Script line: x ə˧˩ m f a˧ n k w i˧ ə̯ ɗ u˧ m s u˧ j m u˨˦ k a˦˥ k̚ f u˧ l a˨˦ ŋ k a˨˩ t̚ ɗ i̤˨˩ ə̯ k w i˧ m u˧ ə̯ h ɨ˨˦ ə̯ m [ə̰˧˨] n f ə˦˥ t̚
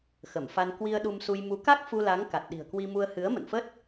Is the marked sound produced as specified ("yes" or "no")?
yes